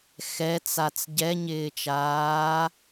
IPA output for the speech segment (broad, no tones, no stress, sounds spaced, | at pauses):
x ɛ t͡s a t͡s ɟ ɛ ɲ ɪː t͡ʃ aː